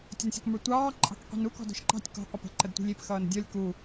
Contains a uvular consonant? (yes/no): yes